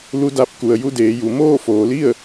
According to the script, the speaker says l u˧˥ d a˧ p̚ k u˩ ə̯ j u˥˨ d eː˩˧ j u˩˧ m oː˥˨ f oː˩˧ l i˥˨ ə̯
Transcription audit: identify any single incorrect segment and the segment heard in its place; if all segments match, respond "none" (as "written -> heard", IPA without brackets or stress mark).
none